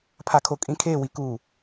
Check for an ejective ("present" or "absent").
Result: present